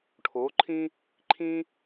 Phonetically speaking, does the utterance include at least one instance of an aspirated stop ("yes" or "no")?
yes